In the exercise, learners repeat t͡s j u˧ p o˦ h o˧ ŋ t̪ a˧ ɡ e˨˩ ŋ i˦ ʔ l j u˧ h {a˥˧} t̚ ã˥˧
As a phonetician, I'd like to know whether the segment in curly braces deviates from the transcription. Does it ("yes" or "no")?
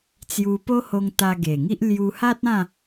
yes